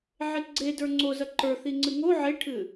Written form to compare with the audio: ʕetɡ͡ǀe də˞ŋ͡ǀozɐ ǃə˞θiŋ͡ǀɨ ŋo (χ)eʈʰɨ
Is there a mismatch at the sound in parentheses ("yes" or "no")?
yes